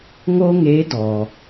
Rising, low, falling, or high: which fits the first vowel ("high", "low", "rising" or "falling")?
high